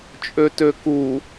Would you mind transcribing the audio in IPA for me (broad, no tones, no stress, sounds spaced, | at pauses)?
t͡ʃʼ ø t ø k u